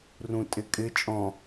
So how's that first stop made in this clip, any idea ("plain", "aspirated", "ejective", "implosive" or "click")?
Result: ejective